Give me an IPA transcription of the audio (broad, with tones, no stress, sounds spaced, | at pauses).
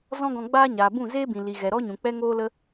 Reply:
z ɔ̃˦ ɡ ɔ̃˧ ɡ͡b aː˦ ɲ aː˨ b ũ˦˨ z eː˦ b ĩ˨ l i˨ ɣ ɛ˨ ɾ ɔ˦ ɲ ũ˨ k͡p ɛ˦ ŋ oː˦ l ə˦